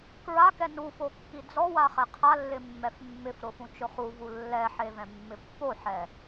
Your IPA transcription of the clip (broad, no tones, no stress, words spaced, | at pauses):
kɹakɛ nufokːi d͡zɔwaχɛ qʰalːɪmːɛf mːɪfɾʊfũt͡ʃʊ χuvu lːɛħevɛ̃mːɪ pːoħɛ